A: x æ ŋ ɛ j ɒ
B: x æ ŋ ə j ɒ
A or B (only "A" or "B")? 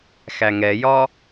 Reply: A